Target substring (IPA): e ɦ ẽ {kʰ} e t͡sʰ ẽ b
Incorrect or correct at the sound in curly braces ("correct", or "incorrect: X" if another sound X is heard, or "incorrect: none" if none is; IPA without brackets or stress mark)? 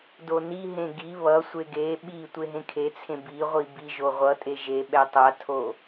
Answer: correct